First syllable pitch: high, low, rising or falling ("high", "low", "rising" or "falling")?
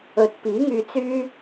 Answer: rising